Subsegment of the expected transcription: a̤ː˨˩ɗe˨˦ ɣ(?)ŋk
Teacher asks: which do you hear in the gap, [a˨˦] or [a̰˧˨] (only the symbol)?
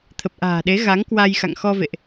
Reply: a˨˦